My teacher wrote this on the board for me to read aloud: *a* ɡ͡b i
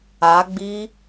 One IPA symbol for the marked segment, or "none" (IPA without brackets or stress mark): a